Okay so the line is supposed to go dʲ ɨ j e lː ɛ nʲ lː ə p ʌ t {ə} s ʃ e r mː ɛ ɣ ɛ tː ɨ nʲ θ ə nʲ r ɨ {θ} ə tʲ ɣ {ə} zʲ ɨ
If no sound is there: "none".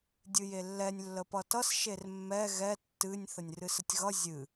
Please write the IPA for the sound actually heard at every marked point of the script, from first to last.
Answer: ʌ, s, ʌ

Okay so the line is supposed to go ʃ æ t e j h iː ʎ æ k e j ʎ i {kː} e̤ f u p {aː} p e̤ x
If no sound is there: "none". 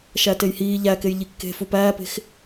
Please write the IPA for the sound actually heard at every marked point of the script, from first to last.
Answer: kː, æː

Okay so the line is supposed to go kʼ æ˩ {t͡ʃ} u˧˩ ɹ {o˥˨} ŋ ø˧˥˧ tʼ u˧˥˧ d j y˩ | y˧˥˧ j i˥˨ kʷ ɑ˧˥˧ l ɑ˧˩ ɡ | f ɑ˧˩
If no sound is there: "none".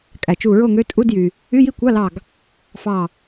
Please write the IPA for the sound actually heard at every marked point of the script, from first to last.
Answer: t͡ʃ, o˥˨

